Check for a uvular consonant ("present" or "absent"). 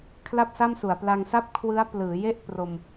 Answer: absent